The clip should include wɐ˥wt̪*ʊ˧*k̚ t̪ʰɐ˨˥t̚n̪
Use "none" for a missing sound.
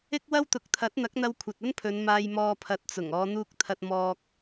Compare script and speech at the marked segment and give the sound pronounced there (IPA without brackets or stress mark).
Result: ʊ˨˥